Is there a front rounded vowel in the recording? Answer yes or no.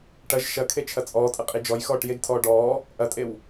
no